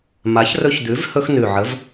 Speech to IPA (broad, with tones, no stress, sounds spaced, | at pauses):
m a˨˥ ç r ɵ˦ ç d̪ ʉ˨˥ v h ɵ˦ x n ʉ˨˩ ʕ ə˨˥ v